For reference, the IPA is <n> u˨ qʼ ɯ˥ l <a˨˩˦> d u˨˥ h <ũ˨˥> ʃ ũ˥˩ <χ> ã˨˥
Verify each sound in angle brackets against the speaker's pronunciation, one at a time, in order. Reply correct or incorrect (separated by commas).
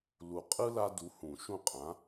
incorrect, incorrect, incorrect, incorrect